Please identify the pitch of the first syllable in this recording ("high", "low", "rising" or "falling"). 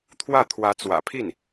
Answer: falling